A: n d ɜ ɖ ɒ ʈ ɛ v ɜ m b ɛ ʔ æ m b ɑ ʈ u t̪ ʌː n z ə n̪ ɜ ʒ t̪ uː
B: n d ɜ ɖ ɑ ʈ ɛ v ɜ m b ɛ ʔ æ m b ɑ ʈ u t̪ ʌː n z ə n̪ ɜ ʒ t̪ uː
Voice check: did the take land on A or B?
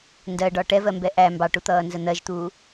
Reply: A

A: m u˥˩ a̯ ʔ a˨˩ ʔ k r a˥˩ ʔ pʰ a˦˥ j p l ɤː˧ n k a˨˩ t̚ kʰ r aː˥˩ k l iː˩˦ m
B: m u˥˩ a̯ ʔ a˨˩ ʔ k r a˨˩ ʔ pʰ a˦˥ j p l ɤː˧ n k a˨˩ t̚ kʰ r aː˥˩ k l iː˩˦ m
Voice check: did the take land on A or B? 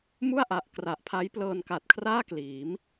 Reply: B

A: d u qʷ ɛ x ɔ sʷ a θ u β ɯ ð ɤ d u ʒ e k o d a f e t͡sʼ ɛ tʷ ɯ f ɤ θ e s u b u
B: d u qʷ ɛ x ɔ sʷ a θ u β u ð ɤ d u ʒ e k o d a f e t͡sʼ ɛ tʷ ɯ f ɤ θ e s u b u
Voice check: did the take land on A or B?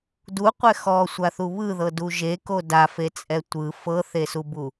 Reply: A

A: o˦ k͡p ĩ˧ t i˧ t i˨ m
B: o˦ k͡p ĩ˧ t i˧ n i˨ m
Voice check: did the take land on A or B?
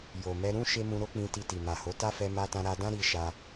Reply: A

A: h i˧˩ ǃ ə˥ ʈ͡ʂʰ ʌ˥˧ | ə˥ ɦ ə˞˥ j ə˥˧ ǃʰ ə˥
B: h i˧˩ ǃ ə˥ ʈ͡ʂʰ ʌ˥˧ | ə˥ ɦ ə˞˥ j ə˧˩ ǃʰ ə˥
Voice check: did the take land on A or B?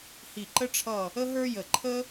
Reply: B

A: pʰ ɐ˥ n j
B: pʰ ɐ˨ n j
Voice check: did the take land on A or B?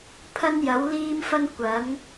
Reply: A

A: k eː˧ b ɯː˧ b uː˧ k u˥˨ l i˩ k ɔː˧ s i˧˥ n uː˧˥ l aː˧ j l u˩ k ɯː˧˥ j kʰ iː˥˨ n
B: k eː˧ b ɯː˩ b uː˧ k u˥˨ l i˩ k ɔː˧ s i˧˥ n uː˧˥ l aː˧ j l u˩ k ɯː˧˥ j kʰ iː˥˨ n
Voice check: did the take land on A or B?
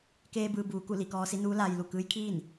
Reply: A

